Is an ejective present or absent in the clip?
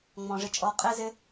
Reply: present